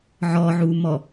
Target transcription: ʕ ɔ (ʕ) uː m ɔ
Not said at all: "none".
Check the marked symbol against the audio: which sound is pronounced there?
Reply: ʕ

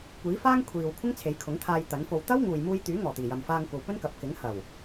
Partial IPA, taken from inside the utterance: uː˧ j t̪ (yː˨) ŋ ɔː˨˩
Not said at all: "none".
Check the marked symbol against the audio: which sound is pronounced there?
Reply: yː˨˥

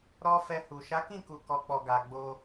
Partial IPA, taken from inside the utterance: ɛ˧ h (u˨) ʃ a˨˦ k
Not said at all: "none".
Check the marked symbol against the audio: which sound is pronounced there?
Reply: u˨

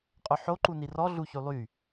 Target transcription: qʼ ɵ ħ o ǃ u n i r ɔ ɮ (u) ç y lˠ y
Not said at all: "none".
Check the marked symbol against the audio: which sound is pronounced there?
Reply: u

